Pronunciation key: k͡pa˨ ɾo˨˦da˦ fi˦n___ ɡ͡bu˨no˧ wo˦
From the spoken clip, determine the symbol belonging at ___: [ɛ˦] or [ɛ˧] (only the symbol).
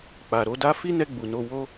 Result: ɛ˧